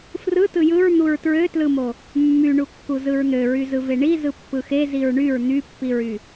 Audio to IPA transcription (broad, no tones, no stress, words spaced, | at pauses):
frɯ tɯjɯɹ n̪uɹtɹøtlɯmo | mːyɳukːu zɯɹn̪ø ɹyzɯveɳi zɯpːɯxe ziɹɳyɹ n̪ypːiɹy